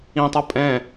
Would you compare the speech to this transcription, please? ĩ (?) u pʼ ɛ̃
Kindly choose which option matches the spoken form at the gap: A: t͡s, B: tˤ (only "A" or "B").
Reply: B